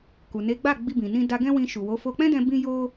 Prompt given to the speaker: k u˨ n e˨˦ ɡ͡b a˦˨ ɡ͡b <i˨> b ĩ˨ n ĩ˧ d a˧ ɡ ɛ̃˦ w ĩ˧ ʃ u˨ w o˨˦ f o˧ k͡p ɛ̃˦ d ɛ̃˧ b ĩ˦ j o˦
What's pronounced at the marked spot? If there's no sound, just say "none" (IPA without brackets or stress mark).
i˧